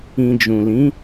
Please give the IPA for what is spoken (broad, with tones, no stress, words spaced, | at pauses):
ĩ˨d͡ʒũ˨lĩ˨˦